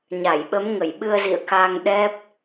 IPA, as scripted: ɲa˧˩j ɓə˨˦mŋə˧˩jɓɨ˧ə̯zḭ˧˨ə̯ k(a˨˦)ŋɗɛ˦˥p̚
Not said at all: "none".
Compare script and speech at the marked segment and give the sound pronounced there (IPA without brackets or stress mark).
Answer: a˧